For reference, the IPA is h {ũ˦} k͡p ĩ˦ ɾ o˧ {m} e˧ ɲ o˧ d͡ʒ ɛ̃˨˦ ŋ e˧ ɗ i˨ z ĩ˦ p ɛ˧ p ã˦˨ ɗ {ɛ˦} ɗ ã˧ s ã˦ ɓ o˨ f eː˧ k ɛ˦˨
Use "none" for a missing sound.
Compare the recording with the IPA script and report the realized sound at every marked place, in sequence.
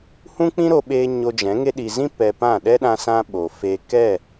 ũ˦, ɓ, ɛ˦

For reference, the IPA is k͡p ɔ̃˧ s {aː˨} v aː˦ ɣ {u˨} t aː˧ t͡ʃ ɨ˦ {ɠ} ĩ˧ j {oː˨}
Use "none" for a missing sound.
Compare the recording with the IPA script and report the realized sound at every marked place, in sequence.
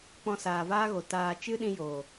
aː˨, o˨, ɗ, oː˨

